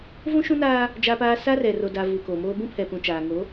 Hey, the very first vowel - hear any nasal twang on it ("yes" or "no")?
yes